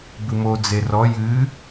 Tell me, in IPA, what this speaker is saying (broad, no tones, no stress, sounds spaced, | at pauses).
b ɨ m o d͡z e r ɔ j ɨ